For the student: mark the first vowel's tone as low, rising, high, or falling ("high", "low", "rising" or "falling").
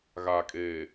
low